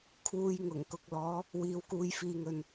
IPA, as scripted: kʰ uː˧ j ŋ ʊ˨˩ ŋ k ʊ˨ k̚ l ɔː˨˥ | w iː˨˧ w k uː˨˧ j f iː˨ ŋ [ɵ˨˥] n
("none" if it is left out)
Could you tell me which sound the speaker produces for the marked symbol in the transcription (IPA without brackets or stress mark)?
ɵ˨